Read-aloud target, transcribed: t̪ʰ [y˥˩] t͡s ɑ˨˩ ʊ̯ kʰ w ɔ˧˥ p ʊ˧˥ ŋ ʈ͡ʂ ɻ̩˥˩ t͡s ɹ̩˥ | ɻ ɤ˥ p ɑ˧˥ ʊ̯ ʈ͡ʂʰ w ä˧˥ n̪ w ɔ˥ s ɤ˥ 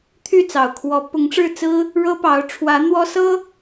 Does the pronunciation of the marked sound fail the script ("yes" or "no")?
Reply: no